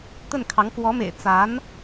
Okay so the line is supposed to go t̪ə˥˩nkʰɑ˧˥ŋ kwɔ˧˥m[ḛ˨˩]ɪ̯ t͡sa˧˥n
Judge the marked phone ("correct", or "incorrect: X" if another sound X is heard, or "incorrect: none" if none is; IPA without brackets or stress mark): correct